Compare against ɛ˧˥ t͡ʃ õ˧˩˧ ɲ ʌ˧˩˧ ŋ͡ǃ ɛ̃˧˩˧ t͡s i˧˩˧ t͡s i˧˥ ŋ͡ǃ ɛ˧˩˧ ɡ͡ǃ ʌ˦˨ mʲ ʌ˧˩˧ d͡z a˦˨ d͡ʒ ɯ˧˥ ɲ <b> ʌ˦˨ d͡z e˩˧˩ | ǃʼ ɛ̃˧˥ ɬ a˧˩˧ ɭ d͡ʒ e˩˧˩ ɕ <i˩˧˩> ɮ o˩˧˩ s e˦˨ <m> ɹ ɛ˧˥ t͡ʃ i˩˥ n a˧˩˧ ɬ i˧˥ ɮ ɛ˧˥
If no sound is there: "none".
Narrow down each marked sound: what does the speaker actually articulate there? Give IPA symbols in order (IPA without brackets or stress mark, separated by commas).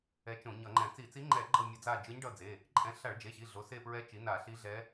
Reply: ɖ, i˩˧˩, p